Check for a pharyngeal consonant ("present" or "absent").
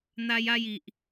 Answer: absent